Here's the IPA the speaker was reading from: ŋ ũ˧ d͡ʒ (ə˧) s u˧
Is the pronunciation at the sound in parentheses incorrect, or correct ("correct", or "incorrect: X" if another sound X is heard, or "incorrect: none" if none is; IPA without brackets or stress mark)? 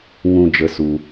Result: correct